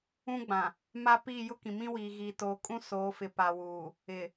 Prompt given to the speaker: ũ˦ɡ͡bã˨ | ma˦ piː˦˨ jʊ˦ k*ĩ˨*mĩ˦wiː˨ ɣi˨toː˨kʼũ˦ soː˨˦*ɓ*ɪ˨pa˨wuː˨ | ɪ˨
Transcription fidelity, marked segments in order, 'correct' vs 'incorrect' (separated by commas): correct, incorrect